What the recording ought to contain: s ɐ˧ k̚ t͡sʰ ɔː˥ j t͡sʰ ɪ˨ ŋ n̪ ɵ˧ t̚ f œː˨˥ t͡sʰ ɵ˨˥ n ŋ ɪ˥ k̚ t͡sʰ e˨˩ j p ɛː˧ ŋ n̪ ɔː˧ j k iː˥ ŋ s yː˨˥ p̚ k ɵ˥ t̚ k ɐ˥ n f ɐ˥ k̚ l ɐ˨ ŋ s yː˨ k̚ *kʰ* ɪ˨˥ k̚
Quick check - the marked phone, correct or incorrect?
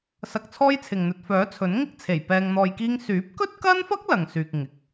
incorrect